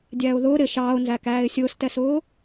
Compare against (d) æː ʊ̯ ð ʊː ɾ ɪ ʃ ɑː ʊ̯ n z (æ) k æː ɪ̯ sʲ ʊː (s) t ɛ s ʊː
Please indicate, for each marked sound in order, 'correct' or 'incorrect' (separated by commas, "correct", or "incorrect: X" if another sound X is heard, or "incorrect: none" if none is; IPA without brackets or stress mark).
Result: incorrect: dʲ, correct, correct